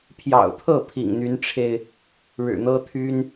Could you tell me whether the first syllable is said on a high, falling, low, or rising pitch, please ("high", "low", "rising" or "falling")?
low